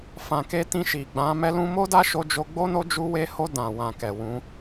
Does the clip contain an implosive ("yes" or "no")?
no